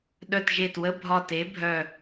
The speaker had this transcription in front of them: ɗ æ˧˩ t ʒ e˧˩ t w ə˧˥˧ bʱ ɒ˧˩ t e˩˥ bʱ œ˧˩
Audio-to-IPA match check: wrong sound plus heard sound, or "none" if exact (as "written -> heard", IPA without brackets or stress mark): æ˧˩ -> œ˧˩